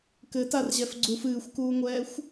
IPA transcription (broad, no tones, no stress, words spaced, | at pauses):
kɘtarʑɛf ɡ͡ǀuf ɨːxʷkuːŋʷɛːxʷ